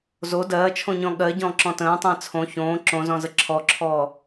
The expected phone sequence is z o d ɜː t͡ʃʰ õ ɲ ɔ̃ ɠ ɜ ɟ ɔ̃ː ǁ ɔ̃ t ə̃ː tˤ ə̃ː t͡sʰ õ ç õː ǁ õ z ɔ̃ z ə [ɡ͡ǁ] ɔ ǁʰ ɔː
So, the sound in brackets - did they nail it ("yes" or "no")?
no